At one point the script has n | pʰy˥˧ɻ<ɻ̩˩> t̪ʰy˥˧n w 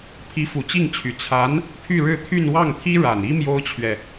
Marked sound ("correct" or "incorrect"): incorrect